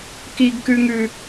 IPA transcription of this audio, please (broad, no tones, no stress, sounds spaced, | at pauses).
k i ɡ k ʉ ŋ ʉ